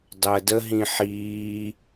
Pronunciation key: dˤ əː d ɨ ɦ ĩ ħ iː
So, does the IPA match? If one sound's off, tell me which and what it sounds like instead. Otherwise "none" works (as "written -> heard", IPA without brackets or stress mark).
ɨ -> ə